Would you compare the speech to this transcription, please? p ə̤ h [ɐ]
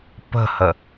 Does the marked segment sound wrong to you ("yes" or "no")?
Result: yes